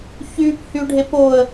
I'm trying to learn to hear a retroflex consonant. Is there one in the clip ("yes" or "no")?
yes